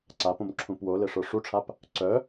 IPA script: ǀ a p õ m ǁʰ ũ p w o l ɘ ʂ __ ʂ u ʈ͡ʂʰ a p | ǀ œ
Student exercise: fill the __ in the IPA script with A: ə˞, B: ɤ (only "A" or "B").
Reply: A